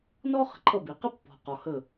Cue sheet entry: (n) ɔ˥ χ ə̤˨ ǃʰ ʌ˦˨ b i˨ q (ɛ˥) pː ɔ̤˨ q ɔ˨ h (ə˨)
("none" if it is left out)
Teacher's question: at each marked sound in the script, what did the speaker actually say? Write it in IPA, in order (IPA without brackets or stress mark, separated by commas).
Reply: n, ə˥, ə˦˨